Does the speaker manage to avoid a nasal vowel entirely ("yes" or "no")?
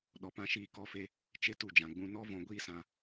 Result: no